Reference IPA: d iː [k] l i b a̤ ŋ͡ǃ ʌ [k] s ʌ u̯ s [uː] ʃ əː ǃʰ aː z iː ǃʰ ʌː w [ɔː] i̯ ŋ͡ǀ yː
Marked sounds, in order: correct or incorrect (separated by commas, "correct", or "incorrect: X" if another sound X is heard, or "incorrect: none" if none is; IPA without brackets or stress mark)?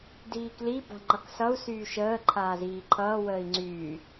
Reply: correct, correct, incorrect: yː, incorrect: əː